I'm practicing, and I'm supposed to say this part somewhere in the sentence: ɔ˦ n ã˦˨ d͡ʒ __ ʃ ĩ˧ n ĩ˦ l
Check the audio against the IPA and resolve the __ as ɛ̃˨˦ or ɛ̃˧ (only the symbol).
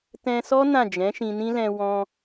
ɛ̃˨˦